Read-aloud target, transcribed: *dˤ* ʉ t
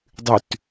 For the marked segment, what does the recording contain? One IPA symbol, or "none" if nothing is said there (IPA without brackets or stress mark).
dˤ